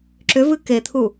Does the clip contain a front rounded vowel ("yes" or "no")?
yes